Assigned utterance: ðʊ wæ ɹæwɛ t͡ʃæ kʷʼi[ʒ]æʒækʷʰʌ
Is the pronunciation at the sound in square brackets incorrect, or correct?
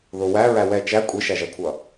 incorrect